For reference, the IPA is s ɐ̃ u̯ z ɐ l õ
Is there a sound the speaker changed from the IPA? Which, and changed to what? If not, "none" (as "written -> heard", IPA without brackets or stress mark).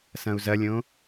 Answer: l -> lʲ